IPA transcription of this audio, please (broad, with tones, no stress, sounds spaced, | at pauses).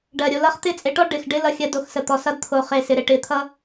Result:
ɖ ɜ˨ ɾʲ o˧ l ʌ˦ χ t̪ ɪ˦˨ t͡sʼ e˧ ʈ ɔ˦ ɖ ɪ˨ x ɖ ɪ˦ l ʌ˧ xʲ ɜ˧ d o˧ x s ə˨ t̪ ɔ˨ s ʌ˧ d t̪ʰ o˨ χ e˨ s ɪ˨ ɾ e˨ ʈ ɪ˨˦ t̪ʰ ʌ˦